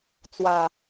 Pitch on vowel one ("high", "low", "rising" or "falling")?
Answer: low